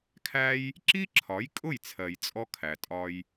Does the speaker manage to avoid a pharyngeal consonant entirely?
yes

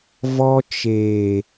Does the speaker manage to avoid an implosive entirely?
yes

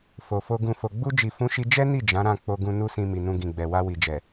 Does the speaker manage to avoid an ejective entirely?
yes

